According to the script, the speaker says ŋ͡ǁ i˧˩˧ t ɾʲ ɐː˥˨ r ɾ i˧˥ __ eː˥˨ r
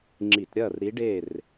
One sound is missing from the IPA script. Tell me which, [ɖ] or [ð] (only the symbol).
ɖ